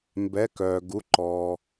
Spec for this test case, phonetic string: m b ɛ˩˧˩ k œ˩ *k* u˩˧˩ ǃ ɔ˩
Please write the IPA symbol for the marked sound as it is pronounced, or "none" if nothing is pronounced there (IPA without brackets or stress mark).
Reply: ɡ